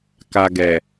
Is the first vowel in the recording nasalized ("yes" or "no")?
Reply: no